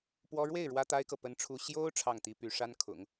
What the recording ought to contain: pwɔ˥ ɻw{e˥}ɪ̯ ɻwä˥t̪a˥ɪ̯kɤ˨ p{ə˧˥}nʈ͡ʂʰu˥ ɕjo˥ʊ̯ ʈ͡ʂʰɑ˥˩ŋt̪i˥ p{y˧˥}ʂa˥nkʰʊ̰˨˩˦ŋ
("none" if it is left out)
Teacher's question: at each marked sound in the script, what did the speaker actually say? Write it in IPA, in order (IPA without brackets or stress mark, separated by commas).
e˥˩, ə˥, y˧˥